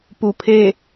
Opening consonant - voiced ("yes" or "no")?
no